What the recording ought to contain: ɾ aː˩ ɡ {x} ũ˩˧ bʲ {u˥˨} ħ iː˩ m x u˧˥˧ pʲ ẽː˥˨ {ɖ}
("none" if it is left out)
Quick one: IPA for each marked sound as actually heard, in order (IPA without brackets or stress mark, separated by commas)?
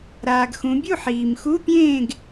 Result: x, u˥˨, ɡ